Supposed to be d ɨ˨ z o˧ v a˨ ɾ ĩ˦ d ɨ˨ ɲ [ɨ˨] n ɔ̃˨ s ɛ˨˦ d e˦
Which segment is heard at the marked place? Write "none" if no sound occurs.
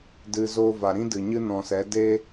ɨ˦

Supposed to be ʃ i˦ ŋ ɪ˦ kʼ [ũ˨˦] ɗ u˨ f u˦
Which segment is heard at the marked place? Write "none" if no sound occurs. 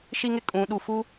ũ˨˦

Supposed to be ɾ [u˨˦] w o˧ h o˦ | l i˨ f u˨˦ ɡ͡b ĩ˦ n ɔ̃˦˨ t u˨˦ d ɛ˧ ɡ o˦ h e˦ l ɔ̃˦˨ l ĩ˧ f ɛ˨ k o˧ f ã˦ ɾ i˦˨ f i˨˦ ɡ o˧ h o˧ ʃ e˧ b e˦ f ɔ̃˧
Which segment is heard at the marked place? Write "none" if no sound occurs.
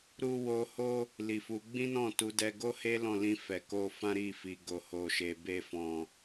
u˧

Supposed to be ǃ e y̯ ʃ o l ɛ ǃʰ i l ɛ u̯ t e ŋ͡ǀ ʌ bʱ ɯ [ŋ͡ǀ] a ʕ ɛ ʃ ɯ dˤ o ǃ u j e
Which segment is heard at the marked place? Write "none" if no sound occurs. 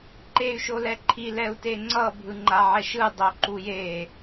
ŋ͡ǃ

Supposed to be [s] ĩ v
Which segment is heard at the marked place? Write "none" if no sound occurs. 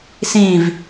s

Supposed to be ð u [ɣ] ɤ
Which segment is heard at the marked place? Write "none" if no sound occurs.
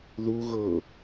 ɣ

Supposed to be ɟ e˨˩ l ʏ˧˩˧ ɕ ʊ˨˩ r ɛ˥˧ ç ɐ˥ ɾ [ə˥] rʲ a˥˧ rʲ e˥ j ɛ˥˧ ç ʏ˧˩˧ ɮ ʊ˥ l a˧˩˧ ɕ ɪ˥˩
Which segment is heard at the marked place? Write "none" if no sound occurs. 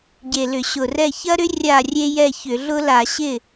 ʏ˥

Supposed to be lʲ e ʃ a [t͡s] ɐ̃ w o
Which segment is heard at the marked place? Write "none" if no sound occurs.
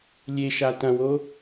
t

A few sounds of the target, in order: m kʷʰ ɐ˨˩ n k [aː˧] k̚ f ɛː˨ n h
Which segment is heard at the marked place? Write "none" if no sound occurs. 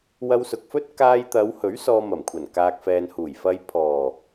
aː˨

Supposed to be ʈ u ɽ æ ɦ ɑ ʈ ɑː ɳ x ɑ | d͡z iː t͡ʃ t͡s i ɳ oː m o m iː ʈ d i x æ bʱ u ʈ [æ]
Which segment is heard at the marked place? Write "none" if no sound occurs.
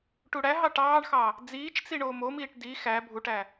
æ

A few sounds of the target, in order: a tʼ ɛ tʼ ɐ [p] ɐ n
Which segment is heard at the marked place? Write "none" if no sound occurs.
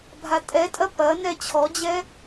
p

